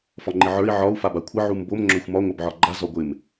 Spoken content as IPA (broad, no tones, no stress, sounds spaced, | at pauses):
f ɒ ŋ͡ǃ ɪ ʕ ə˞ i̯ ʕ ɒ u̯ f a b a kʷʰ ɪ ʕ u m b o m ŋ͡ǁ œ xʷ m ɒ ŋʷ œ b ʕ ɒ ɡ͡ǃ a z ɒ ɡʷ ɪ m